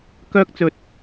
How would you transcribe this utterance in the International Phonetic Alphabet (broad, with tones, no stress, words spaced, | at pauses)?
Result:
kœː˥k̚t͡sɵ˨t̚